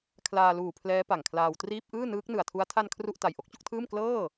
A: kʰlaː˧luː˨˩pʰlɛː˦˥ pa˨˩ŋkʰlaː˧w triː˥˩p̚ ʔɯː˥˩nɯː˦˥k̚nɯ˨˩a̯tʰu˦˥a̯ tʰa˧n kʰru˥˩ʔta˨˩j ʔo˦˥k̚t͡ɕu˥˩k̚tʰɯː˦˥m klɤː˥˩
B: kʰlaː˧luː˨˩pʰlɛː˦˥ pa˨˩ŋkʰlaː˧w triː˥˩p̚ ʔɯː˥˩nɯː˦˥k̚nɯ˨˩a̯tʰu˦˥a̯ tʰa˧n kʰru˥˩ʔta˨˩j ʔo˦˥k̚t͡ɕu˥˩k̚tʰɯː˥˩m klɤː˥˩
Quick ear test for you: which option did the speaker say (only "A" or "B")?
B